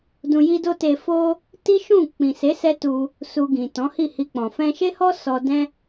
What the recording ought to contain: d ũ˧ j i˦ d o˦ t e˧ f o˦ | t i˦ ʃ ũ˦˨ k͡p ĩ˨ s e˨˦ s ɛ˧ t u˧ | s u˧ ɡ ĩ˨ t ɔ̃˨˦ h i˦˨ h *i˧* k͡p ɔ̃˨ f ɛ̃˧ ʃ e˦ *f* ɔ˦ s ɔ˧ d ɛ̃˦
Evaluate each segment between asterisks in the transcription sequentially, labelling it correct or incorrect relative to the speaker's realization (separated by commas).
correct, incorrect